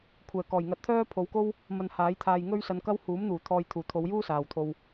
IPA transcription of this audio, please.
kʷʰ ɛː˨˩ k ɔː˨˩ j ŋ ɐ˧ t̚ t̪ʰ œː˥ pʰ o˨˧ w k o˥ w | m ɐ˧ n h aː˨˥ j t̪ʰ aː˧ j ŋ ɵ˥ ɥ s ɐ˧ n k ɐ˥ w h uː˨˥ m n̪ uː˨˩ t̪ʰ ɔː˧ j t̪ʰ uː˨˩ t̪ʰ o˨˧ w j uː˥ s aː˨ w t̪ʰ o˧ w

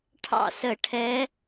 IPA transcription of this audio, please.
ʈʰ ɑ̰˥˩ s ə˧˩˧ ʈʰ ɛ˧˥

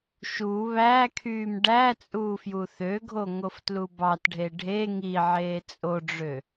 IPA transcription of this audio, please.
ʃ u β æ kʰ yː m ɖ æ t͡sʼ uː f j u θ ø ɡʱ o ŋ o f t l u b ɑ t ɖʱ e ɖʱ e ŋ i ʕ eː t͡sʼ o ɖ͡ʐ ø

